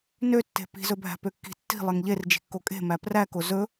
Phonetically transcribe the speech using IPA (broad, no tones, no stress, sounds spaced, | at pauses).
n ø tː e̤ p i̤ z ɵ bʱ æ̤ p ø kː i̤ tː i̤ lˠ e ŋ ʎ e r d͡ʒ i̤ kː o kʼ e̤ m æ p r æ k o z ɵ